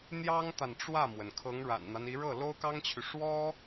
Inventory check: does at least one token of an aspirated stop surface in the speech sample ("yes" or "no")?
yes